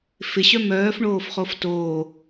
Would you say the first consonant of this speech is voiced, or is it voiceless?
voiceless